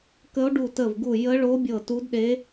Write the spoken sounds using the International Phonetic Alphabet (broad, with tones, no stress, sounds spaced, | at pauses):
k ə˧˥ o̯ ɖ u˧˩ t ə˧˩ v ɡ u˧˩ j ə˧˥ ɭ o˧˥ bʲ ɤ˧˩ t u˧˥ d ɗ e˧˥